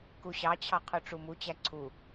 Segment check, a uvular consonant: present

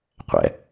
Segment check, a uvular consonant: present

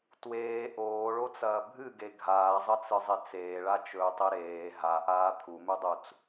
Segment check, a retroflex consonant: present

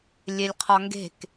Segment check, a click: absent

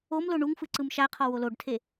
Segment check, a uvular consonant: present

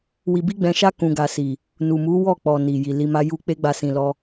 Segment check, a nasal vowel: present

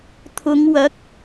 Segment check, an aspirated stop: present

